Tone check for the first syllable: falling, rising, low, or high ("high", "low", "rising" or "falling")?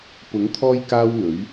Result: rising